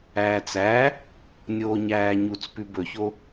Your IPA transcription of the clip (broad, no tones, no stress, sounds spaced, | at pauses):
æː t͡s æ | nʲ oː ɲ æː ɲ u t͡s p ʉ b ɵ ç o